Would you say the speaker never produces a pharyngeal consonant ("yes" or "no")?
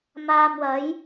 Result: yes